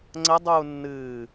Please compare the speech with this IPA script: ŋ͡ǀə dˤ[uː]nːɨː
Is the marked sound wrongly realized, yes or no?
no